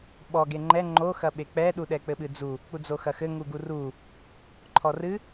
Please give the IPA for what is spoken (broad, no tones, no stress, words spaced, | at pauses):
ɓɔɡe ŋ͡ǃɛ ŋ͡ǃoxɐɓe k͡pɛɗuɗɛ k͡pɘɓɨd͡zu | k͡pud͡zoxɐxɘ ŋuɡuru | ǃʰɔrɨ